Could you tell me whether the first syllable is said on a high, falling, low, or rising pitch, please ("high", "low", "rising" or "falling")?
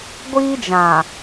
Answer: high